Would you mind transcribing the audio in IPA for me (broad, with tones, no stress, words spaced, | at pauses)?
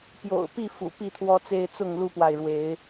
pjo̰˨˩ʊ̯ pi˥˨fṵ˨˩ pi˥˨t̪ʰwɔ˦t͡se˦ɪ̯ t͡sʊ˥˨ŋlu˦pwa˨ɪ̯ɻwe˨˦ɪ̯